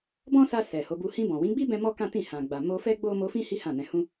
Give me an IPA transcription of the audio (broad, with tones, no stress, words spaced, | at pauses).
bɔ̃˦sa˧ sɛ˨ ho˨˦bu˧ hĩ˧bɔ̃˨wĩ˨˦ɡ͡bi˦ bɛ̃˦mɔ˦ kã˦tĩ˦˨ hã˨ɡ͡ba˨ mo˧fɛ˦ ɡ͡bo˦ mo˧fĩ˦ hi˦ hã˦˨nɛ̃˧hũ˦